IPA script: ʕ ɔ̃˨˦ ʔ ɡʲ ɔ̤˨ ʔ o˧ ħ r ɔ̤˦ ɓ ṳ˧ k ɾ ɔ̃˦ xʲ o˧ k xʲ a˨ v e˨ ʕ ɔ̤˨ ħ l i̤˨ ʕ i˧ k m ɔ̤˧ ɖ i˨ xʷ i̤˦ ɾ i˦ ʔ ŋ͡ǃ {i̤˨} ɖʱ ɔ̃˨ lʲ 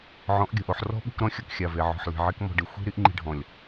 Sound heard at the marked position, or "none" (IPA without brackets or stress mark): i̤˧